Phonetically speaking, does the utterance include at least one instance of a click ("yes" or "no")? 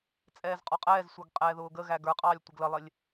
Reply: no